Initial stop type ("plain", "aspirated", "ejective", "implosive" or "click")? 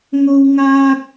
plain